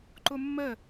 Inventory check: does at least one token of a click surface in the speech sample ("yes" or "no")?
yes